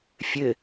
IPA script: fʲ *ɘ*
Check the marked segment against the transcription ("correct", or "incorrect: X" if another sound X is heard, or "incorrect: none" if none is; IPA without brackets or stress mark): correct